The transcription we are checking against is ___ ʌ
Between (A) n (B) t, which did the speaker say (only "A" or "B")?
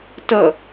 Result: B